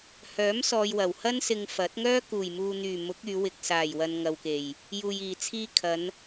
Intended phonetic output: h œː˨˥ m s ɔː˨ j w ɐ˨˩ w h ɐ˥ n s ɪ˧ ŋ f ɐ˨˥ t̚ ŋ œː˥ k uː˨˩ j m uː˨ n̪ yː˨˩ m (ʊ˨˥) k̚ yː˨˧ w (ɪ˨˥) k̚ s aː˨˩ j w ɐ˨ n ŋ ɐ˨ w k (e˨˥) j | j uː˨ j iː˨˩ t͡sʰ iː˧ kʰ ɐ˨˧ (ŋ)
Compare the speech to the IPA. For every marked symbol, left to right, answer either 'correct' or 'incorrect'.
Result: correct, incorrect: ɪ˨, incorrect: e˨˩, incorrect: n

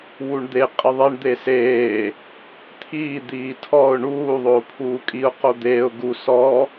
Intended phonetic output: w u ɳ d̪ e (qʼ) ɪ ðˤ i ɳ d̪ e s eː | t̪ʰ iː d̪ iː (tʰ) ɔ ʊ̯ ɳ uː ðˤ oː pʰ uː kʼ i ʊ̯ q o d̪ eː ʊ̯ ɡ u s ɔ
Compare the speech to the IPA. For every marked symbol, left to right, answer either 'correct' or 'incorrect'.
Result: correct, correct

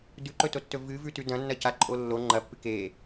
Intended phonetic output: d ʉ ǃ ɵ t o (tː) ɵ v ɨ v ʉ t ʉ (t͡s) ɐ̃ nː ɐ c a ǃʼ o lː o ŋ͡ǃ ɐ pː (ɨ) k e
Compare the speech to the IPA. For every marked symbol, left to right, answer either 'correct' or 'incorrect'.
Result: correct, incorrect: d, correct

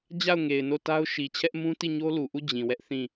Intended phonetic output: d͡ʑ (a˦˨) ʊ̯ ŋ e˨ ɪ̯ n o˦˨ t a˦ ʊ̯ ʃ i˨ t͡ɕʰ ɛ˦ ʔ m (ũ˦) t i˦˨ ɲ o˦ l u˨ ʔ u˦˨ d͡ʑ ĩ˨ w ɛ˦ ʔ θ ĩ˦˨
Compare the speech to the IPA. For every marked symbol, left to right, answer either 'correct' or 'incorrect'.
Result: correct, correct

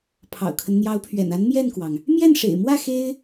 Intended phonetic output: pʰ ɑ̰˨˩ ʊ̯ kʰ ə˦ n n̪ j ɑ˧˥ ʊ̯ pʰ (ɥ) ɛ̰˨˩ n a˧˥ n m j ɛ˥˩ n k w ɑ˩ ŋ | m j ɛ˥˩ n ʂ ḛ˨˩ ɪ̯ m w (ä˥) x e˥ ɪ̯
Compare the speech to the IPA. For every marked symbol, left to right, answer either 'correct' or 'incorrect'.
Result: correct, incorrect: ä˥˩

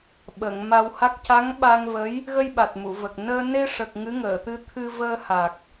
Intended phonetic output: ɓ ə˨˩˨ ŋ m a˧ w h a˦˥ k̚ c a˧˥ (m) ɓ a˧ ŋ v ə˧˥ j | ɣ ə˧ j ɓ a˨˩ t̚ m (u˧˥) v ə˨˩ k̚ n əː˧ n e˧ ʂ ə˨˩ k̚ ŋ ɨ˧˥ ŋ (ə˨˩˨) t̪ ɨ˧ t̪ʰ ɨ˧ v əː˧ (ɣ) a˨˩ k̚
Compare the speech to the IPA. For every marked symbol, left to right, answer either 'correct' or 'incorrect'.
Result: incorrect: ŋ, incorrect: u˨˩˨, incorrect: əː˨˩˨, incorrect: h

